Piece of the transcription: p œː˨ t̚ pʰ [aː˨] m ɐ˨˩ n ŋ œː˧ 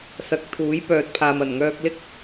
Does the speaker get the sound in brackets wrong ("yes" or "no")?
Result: no